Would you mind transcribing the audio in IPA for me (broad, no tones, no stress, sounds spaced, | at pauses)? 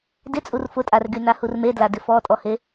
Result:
d ɪ t͡sʼ u r f ʊ tʼ a r ɡ y n a h u r m e d l a d ɪ f ɔ tʼ ɔ h e